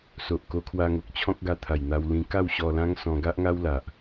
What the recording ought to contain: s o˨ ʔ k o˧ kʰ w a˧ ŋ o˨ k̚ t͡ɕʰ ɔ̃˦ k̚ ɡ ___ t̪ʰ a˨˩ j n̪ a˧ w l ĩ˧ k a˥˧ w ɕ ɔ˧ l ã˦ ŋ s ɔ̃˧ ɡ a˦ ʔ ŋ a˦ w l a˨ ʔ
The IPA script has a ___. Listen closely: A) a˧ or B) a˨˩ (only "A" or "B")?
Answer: A